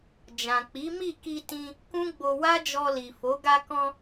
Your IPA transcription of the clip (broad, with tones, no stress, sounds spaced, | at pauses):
d͡ʒ ã˨ k͡p i˨˦ m i˦˨ k i˧ t ĩ˧ | k ũ˦ ɡ͡b o˧ w a˦ d͡ʒ ɔ˧ l i˨ f o˨˦ ɡ a˧ k ɔ̃˧